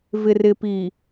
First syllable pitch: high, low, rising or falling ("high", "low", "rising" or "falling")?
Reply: low